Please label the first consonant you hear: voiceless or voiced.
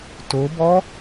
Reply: voiceless